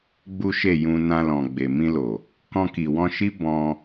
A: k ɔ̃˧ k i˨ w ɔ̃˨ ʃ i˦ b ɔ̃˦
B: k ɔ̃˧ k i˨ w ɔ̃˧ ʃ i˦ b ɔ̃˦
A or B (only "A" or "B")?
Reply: B